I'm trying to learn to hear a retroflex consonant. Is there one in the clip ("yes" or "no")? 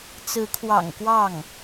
no